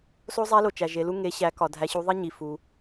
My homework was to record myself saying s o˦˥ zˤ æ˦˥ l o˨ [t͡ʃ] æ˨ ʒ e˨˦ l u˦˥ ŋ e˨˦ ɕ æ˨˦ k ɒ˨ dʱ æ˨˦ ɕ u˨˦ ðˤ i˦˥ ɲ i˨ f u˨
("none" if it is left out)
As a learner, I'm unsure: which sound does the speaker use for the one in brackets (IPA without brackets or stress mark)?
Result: t͡ʃ